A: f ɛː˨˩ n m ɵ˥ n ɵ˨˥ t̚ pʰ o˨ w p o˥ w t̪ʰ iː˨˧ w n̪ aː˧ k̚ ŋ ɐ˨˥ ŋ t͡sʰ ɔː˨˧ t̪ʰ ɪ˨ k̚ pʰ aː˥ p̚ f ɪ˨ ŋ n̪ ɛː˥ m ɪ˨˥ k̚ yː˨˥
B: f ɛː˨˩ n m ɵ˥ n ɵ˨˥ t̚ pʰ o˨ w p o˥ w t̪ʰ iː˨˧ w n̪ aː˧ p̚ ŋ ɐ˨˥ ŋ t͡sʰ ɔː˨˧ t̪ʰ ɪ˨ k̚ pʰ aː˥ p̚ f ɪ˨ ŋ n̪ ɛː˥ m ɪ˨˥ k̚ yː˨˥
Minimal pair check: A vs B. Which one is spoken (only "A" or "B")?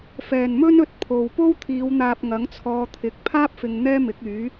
B